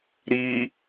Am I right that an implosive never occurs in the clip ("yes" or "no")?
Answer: yes